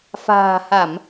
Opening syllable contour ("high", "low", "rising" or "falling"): low